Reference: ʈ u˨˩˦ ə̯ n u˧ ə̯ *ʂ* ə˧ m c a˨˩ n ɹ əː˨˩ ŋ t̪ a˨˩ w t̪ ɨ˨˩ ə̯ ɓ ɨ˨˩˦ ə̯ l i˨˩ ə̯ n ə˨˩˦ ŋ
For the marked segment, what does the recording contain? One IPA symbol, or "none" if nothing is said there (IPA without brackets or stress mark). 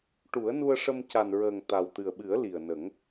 ʂ